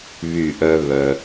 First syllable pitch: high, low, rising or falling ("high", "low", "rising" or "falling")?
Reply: falling